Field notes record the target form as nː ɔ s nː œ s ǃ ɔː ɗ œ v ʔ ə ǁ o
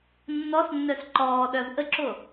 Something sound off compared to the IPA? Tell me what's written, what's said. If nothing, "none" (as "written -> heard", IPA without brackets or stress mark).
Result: none